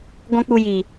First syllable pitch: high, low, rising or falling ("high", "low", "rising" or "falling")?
high